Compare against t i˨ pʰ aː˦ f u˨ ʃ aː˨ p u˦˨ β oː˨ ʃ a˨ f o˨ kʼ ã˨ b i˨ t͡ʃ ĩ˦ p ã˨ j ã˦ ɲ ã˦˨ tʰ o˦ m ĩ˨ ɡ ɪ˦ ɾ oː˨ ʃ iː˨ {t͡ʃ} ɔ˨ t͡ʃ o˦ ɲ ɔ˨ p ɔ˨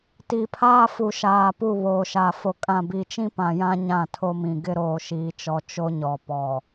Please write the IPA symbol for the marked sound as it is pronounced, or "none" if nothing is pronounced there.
t͡ʃ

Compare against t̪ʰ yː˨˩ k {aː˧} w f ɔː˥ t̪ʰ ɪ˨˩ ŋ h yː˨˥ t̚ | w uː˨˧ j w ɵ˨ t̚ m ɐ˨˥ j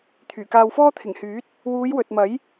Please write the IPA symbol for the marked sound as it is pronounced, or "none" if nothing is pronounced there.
aː˧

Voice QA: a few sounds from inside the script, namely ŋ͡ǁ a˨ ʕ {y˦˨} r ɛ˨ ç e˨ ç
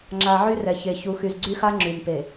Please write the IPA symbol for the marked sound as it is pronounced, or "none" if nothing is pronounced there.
y˦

